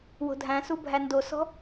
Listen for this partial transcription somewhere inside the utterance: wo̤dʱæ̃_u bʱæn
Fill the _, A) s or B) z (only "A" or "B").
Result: A